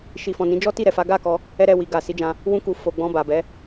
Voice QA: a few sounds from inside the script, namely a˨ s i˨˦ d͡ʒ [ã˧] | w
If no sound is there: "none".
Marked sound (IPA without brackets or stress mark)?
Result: ã˧